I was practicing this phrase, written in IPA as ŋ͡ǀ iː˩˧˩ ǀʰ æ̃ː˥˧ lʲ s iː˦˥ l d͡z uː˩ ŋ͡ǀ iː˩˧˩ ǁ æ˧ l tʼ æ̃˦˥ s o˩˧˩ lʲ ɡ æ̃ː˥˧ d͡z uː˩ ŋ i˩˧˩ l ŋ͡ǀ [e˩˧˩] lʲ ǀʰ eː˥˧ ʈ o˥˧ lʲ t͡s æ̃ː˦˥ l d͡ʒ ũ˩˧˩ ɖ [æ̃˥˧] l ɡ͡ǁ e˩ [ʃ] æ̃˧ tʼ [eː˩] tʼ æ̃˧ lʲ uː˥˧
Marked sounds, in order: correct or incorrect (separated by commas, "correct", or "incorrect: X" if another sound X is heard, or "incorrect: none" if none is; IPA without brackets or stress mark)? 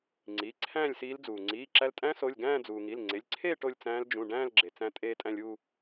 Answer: correct, incorrect: æ̃ː˥˧, incorrect: t͡s, incorrect: eː˧